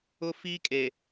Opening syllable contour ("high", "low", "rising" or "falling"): high